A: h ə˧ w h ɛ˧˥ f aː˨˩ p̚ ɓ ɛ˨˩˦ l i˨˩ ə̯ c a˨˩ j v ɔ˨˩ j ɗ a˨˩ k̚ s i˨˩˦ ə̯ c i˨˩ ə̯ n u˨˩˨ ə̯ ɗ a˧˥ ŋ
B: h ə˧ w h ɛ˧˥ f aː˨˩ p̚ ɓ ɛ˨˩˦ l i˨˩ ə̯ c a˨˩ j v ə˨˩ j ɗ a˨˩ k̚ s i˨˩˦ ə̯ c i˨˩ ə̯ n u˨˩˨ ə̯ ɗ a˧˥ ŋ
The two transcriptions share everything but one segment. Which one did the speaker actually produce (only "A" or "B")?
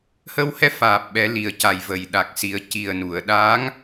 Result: B